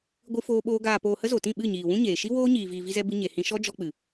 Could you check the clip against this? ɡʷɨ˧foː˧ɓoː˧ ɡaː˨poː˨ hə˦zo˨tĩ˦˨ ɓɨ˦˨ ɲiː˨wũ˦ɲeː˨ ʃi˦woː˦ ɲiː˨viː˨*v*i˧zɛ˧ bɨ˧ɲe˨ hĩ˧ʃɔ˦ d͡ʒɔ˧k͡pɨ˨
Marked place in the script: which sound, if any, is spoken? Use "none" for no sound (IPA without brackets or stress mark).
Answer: v